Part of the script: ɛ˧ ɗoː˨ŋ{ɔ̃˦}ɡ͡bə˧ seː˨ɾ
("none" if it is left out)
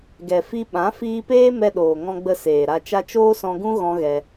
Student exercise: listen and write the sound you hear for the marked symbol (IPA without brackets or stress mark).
ɔ̃˧